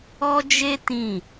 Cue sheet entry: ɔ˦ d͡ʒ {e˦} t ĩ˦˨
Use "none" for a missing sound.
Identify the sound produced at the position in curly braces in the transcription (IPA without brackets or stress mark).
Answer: e˦